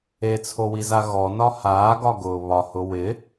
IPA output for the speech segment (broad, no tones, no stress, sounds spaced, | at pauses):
e t͡sʰ o w i z a ɣ ɔ n ɒ h aː ɡ ɒ ɡ ʊː β ɒ h ʊ w ɪ